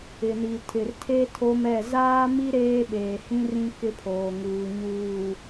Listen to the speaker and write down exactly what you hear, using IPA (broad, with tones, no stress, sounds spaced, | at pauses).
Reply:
ɪ˨ n i˨ tʰ ɪ˨ r tʰ e˦ tʰ o˦ m ɛ˦˨ z aː˦ m i˦ ɾ eː˦ ɓ eː˨ h ĩ˦ r ĩ˦ k ɪ˦ pʰ oː˨ ŋ uː˨ ɲ uː˨